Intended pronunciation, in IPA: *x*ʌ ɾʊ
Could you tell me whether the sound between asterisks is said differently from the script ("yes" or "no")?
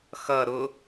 no